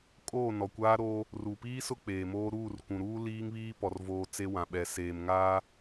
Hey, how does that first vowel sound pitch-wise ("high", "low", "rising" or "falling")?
falling